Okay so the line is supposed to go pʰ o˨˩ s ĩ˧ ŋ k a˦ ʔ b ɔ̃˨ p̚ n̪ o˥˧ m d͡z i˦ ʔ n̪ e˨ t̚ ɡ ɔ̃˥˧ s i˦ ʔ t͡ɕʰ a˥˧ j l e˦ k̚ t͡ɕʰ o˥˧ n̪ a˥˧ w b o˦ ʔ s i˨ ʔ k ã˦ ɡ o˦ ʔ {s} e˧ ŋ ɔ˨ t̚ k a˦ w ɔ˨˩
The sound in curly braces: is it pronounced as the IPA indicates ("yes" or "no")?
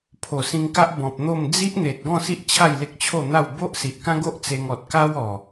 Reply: no